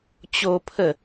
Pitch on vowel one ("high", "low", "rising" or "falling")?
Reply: high